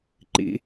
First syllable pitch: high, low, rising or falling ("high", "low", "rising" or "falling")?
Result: low